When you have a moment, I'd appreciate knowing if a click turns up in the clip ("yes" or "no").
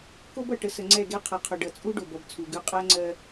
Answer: yes